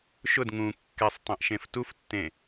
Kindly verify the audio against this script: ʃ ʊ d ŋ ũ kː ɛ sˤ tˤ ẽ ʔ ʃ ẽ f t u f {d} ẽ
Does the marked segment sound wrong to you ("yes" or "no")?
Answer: yes